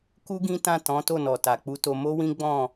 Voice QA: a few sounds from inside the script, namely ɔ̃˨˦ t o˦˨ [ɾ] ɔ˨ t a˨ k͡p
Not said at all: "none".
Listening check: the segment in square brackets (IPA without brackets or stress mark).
n